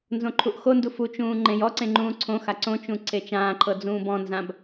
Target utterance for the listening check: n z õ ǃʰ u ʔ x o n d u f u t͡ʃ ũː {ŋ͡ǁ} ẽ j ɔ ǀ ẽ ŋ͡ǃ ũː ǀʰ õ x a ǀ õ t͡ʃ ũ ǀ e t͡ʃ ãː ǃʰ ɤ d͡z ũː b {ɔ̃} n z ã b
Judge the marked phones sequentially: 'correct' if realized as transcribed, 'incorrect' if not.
incorrect: ŋ͡ǃ, correct

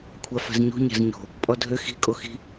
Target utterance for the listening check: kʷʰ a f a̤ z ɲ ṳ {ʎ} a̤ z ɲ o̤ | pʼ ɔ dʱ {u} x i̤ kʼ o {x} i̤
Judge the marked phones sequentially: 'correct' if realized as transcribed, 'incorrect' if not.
incorrect: ɲ, incorrect: ø, correct

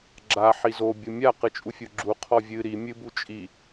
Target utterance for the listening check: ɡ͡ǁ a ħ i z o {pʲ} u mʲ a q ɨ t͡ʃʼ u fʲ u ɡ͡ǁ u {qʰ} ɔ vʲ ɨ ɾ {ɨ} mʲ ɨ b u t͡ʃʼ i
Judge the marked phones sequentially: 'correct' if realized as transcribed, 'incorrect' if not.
incorrect: bʲ, correct, incorrect: i

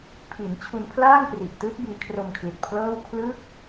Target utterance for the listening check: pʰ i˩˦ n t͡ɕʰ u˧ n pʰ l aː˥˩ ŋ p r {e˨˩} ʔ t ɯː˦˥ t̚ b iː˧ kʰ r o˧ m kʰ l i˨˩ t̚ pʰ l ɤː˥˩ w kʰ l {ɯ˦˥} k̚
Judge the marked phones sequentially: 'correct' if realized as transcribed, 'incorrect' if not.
incorrect: i˨˩, correct

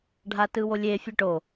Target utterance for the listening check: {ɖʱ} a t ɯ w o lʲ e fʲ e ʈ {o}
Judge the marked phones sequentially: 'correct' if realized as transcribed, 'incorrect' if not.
correct, correct

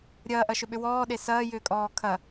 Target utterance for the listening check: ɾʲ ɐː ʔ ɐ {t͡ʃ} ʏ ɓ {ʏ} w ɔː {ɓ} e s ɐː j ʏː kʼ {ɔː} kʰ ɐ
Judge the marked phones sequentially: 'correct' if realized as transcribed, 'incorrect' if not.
incorrect: ʃ, correct, incorrect: ɗ, correct

